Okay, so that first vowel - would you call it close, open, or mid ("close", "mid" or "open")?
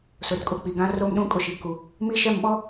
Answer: close